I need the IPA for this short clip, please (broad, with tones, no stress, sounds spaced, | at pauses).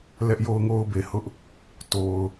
l ɛ˦ ʔ j o˦ ʊ̯ ŋ o˦ ʊ̯ b e˨ h ʊ˦ ʔ | t o˨ ʊ̯